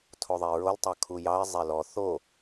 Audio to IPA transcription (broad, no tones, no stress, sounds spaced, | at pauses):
tʰ o ðˤ e ɹ o l tˤ ɑ kʰ u j ɑ ɪ̯ zˤ e l ɔ θ o